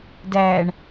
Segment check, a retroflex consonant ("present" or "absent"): present